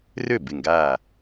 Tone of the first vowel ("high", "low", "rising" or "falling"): falling